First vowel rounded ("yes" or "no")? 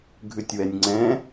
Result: yes